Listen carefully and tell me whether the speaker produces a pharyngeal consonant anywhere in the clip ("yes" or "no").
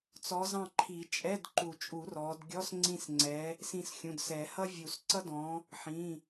yes